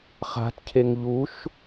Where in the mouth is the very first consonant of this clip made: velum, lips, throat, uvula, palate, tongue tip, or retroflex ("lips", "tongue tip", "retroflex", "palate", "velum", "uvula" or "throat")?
uvula